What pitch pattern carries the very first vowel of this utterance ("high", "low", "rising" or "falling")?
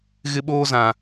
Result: high